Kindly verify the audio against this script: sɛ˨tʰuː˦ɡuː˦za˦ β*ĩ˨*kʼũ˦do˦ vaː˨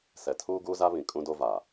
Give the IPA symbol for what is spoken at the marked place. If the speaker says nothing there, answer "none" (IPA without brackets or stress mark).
ĩ˨